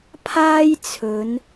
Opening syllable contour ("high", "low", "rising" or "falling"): high